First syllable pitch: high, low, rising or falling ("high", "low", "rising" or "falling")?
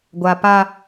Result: high